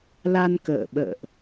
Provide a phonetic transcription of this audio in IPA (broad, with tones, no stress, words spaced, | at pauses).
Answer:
la˧nkə̰ː˧˨ ɓə̰ː˧˨ʔ